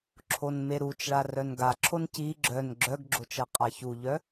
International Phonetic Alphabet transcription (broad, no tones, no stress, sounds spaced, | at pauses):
ǁʰ o n m e ɾ u t͡ʃ ɭ a r œ n ɡ a ǁʰ o n c i ɡ͡ǁ œ n ɡ͡ǁ œ ɡ ɡ͡ǁ o t͡ʃ ɜ qʼ a ç u ʎ œ